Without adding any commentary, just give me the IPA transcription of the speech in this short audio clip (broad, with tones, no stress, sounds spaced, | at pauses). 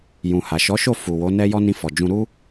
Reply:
j ũ˨ h a˨ ʃ ɔ˨˦ ʃ o˦˨ f u˨ w o˨˦ n ɛ˦ j ɔ˦ n ĩ˧ f ɔ˨ d͡ʒ ũ˧ ɾ u˦